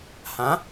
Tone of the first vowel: rising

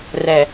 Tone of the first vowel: low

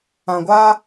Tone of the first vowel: low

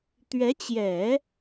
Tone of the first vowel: rising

